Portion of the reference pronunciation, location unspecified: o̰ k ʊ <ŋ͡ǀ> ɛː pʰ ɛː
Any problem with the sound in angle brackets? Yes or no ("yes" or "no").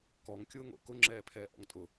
yes